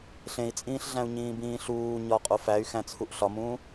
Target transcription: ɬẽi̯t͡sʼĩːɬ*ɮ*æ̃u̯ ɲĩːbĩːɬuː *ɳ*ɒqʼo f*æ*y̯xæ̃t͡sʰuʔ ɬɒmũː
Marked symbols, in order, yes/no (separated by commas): yes, no, yes